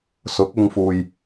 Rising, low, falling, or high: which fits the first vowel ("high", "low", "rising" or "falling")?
rising